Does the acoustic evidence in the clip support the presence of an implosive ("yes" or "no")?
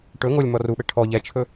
yes